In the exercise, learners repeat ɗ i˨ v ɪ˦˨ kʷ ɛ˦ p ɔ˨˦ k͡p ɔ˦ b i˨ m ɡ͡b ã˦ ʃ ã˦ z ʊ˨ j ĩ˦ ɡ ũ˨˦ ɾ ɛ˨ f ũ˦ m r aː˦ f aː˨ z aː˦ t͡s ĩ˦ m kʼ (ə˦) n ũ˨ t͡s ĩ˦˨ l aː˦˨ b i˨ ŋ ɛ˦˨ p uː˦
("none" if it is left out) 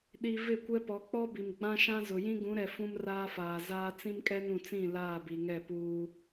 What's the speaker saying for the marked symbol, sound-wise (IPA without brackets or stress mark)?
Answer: ɛ˦